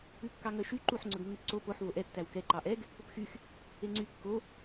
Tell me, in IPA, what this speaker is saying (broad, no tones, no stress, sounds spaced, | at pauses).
ʉ kː ɑ ŋ œ ʃ y ǃ u ħ ŋ͡ǀ ɵ ɡ nː ʉ p ǀ o p o ħ v o ʔ ɛ tː æ w k ɛ ǃ ɑ ʔ ɛ ɡ | p ɵ p x y x | e ŋ͡ǀ y kː o